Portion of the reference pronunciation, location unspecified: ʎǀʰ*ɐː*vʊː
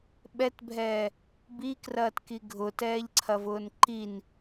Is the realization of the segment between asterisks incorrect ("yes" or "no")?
yes